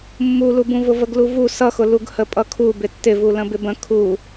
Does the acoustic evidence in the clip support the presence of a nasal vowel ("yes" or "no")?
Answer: yes